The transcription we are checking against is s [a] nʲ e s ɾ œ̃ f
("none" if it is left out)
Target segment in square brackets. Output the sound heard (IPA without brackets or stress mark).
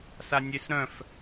a